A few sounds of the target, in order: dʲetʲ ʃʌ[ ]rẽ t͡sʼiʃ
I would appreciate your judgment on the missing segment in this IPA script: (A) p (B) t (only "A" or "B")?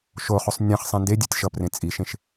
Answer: A